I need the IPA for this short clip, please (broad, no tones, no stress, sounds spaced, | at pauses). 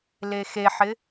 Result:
l e x e ħ ɪ